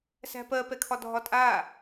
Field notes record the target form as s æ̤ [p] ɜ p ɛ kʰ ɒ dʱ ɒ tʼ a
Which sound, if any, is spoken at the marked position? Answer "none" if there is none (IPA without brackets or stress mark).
p